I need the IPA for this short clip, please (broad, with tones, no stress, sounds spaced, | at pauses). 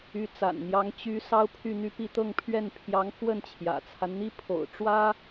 y˧˥ t͡s a̰˨˩ n n̪ j ɑ˧˥ ŋ t͡ɕ y˧˥ s ɑ˥ ʊ̯ pʰ y˥˧ n̪ y˥˧ p i˥˧ t̪ ɤ˥˧ ŋ pʰ ɥ ɛ˥˩ n pʰ j ɑ˧˥ ŋ x w ə˥˩ n t͡ɕʰ j ä̰˨˩ t͡sʰ a˦ n n̪ i˥ pʰ o̰˨˩ ʊ̯ ʈ͡ʂ w ä˥